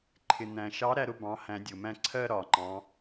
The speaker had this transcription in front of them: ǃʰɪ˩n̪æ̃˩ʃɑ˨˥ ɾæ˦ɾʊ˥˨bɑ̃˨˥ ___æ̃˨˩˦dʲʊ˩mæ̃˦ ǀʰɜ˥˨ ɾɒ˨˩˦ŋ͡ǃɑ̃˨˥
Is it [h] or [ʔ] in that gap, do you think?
h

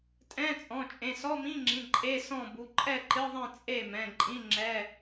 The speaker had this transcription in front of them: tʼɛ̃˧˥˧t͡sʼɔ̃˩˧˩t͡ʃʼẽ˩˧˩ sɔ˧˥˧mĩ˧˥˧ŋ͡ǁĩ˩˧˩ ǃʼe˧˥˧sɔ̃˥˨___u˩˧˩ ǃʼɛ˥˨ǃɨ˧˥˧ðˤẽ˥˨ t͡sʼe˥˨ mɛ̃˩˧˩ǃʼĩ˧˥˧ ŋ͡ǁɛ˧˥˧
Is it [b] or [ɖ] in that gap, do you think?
b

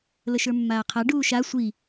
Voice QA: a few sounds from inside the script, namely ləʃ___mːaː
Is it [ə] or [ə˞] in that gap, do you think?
ə˞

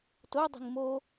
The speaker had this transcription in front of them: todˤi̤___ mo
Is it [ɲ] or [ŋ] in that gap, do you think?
ŋ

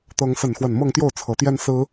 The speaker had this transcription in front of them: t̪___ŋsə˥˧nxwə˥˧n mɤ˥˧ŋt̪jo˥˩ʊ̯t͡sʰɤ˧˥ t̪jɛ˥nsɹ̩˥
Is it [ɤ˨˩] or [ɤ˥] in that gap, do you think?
ɤ˥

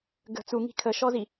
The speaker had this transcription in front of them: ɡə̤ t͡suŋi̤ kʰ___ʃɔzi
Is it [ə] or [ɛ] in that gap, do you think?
ə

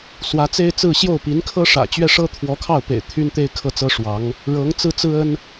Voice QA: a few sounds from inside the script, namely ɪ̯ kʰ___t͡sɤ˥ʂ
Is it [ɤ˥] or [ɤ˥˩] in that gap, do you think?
ɤ˥˩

